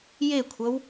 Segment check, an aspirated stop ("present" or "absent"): present